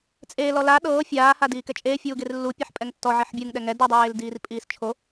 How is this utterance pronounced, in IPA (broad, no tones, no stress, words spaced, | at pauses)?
t͡sʼeː lɔla ɗɤː fʲaː hadiːkɛt͡ʃʼeː fʲuːɡerlːu pʲaħpʼɛŋtːɔ ʕiħbʲɯŋ ɗɛŋɛ du dˤeːldiːrpʼiːst͡ʃʰo